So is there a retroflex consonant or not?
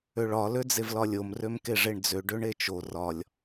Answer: yes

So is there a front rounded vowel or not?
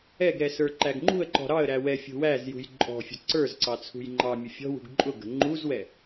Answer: no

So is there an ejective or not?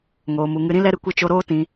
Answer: no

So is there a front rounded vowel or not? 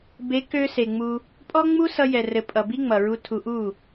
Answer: yes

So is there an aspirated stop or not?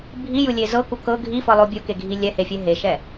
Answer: no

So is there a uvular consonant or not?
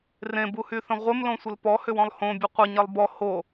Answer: yes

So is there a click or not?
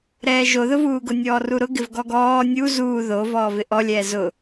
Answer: no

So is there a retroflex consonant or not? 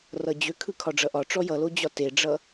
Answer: yes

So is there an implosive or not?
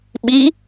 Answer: yes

